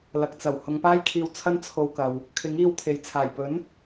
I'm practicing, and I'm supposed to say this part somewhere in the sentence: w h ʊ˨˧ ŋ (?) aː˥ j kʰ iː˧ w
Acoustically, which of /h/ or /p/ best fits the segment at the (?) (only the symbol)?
p